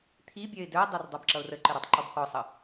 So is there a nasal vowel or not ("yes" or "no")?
no